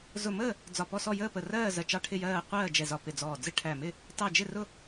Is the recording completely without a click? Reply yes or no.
yes